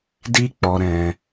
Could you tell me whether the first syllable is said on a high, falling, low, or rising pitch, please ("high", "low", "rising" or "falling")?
high